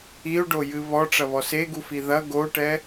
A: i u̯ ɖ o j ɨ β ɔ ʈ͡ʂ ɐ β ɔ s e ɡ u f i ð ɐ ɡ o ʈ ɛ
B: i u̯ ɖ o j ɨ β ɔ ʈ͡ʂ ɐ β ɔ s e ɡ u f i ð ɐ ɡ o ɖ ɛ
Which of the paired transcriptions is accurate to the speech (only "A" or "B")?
A